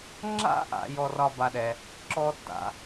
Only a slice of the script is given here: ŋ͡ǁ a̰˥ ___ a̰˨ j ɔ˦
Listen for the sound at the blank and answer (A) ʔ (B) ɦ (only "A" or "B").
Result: A